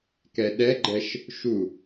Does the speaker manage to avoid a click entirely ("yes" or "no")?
no